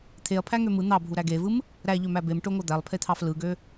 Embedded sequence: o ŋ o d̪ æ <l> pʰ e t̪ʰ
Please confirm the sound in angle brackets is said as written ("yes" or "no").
no